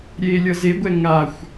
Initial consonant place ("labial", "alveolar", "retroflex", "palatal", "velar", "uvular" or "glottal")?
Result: alveolar